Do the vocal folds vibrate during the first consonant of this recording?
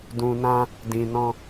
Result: yes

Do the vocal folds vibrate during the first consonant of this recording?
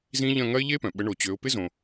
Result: yes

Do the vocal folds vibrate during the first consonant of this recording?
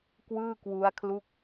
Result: no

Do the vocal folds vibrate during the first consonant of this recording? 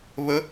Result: yes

